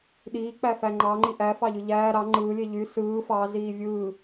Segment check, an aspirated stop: absent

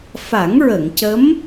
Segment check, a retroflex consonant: absent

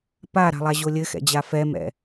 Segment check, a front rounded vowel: absent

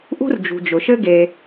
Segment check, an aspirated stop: absent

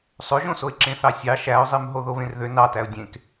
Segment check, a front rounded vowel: present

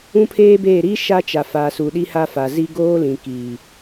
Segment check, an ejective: absent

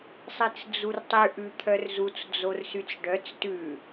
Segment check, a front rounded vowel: present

